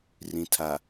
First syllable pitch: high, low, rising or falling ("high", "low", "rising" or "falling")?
low